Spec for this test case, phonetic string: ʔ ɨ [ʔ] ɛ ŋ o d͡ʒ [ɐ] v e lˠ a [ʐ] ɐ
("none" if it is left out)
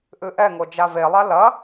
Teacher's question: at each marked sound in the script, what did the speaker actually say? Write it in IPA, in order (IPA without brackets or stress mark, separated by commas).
ʔ, a, l